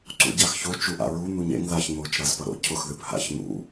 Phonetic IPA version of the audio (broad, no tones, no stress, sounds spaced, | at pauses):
ǀ ṵ ɟ a x ç o t͡ʃ u ʔ a̰ ɹ u n̪ u ɲ ḛ ŋ ð a ç n̪ o t͡ʃ ɾ a z p ʌ ɾ o̰ cʰ ʊ x ð ɨ p h a̰ ç n̪ ṵ